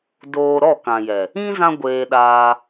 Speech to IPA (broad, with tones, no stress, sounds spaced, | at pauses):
d oː˧ ɾ ɔ˦˨ k ã˨ j ɛ˨ | ĩ˦ z ã˦ ɡʷ eː˧ ɗ aː˧